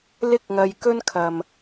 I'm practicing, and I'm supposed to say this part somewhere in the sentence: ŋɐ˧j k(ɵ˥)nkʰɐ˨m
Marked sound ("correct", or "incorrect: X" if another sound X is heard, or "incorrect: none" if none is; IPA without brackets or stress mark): correct